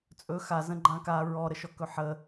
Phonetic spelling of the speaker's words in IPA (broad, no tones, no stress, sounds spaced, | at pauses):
t͡sʼ ɵ x a z ə̃ ɡ͡ǃ ã k a ɹ ɔ ɾ ə ʃ ɔ k ɵ ħ ə